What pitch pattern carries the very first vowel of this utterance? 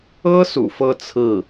high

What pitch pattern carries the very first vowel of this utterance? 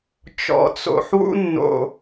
low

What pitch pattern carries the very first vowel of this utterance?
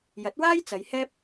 rising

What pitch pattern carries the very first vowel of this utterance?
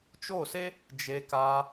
falling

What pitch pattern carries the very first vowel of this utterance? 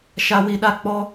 high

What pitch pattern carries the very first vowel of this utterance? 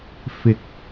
rising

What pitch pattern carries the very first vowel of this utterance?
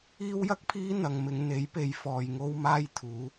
high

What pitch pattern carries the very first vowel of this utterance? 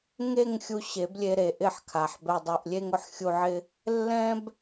falling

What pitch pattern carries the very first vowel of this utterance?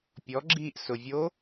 rising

